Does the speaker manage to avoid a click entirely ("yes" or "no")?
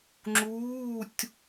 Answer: no